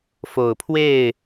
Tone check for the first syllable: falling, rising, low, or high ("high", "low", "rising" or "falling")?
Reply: low